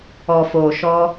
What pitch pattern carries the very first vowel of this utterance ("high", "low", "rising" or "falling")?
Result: low